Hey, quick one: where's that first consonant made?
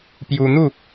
lips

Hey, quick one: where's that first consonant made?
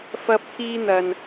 lips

